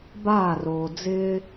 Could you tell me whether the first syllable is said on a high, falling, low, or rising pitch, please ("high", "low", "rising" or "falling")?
falling